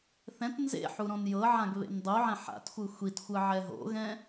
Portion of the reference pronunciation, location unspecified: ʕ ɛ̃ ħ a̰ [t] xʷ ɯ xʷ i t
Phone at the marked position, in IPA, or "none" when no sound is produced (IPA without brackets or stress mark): t